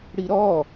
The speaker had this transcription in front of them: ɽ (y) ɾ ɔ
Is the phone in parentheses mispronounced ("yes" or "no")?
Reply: yes